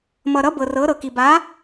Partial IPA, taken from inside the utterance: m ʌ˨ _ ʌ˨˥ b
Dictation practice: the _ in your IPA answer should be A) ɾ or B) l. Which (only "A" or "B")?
A